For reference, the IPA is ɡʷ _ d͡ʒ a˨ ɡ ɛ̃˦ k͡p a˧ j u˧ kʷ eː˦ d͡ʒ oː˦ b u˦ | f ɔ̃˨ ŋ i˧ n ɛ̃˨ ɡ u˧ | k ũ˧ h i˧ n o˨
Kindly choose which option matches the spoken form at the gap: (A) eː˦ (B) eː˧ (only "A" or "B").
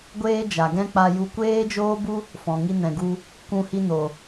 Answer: A